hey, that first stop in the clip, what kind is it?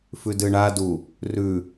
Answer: plain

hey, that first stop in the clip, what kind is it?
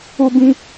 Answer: plain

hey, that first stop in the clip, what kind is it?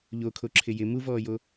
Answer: aspirated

